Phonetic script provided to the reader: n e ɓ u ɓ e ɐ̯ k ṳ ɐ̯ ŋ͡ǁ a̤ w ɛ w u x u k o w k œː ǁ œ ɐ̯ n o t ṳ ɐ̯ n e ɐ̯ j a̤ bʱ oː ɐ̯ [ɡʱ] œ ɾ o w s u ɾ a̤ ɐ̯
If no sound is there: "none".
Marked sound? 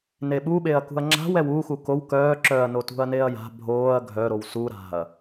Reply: ɡʱ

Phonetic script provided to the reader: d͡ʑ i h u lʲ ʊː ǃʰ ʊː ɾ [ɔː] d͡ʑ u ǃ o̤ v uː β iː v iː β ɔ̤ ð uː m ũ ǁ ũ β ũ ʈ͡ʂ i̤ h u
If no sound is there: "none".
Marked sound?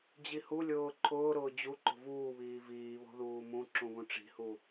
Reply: ʊː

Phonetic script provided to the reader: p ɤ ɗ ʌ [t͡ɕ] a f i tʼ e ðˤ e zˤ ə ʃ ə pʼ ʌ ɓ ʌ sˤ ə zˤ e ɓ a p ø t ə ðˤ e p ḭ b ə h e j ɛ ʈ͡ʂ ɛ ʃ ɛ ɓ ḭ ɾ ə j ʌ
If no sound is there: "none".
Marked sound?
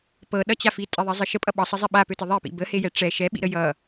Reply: t͡ɕ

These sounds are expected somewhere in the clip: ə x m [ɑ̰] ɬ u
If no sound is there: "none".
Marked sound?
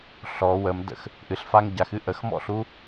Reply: ɔ̰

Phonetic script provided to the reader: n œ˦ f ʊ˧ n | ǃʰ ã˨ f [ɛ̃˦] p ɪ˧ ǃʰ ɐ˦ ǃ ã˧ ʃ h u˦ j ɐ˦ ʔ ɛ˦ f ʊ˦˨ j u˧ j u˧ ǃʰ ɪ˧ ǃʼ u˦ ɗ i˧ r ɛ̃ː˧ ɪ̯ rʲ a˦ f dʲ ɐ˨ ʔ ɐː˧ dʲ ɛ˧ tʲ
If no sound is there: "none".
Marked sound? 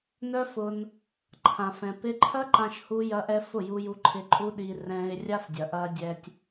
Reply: ɛ̃˨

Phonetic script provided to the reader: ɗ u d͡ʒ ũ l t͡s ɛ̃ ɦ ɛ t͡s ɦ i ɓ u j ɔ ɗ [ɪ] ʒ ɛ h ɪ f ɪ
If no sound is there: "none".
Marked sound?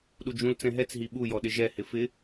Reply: ɪ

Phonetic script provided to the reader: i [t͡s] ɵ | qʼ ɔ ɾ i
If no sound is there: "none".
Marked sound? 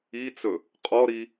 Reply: t͡s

